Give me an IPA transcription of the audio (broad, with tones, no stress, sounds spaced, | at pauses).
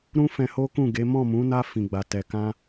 ɾ ũ˧ f ɛ̃˧ h o˦ k ũ˦˨ ɡ e˨˦ m ɔ̃˦˨ m ũ˨˦ n a˧ f ĩ˨ ɡ͡b a˨ t ɛ˨ k ã˧